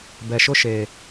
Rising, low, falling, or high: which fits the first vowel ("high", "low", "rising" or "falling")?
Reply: low